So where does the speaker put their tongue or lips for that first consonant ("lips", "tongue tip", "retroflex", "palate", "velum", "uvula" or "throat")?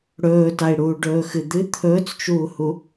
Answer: retroflex